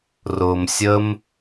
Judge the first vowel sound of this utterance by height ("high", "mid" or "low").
high